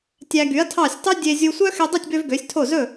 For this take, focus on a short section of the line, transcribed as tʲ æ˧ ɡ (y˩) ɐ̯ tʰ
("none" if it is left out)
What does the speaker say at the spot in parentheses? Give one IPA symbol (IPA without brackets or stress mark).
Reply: y˩˥